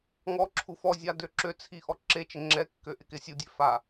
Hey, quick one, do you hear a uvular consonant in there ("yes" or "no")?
no